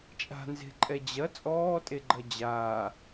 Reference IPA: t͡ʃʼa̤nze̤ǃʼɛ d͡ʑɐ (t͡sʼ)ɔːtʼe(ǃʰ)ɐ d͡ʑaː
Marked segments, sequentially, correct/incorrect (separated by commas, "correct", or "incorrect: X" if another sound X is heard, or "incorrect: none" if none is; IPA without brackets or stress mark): correct, incorrect: ɡ͡ǃ